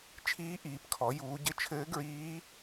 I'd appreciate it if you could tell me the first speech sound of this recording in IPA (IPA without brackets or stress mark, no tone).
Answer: t͡ʃʰ